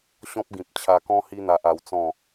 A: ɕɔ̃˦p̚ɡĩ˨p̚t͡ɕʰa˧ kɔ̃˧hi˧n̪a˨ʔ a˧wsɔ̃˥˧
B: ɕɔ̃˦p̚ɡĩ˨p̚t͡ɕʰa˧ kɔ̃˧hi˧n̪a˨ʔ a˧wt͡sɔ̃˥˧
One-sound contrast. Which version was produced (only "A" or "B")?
B